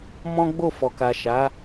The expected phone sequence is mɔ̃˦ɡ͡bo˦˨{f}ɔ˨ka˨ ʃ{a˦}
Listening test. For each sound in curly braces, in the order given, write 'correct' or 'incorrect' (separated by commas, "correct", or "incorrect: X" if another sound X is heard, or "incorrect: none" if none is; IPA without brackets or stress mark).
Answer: correct, incorrect: a˨˦